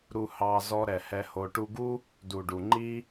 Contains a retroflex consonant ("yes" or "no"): yes